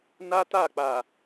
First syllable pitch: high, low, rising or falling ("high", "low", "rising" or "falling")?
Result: high